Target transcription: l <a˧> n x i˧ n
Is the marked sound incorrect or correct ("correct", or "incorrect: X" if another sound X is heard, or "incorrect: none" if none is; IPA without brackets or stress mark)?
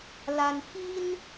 correct